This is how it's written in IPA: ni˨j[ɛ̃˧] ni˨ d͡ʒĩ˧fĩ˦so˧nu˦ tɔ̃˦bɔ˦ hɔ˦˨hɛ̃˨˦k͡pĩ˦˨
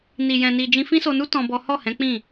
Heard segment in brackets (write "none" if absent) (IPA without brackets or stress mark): ɛ̃˨